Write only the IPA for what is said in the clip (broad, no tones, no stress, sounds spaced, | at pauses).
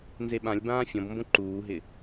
n z e ɓ ã lʲ b ãː fʲ ɔ̃ b m b õ ǃ uː ɦ ɪ